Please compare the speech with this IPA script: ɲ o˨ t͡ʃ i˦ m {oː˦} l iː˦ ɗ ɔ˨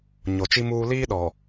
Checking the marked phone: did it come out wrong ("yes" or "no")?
yes